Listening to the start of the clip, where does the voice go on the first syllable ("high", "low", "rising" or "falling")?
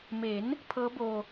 rising